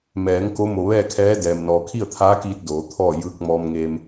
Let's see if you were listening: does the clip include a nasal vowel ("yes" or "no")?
no